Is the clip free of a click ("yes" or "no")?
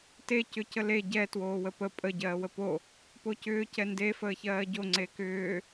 no